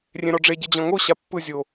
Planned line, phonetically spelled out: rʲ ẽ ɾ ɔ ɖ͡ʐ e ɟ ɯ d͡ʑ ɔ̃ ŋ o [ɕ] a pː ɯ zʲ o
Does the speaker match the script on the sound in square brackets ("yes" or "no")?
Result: yes